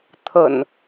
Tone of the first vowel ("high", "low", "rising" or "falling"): low